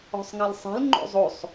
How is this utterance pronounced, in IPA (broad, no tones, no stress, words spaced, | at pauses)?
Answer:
ɔ̤sˤŋalsˤɛ̤l ŋ͡ǃo̰zˤosˤ